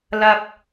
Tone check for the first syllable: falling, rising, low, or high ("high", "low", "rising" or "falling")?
high